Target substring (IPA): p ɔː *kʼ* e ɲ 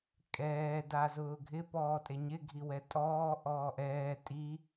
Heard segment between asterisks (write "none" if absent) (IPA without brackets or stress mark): tʼ